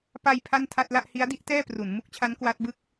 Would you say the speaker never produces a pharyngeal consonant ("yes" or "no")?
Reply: yes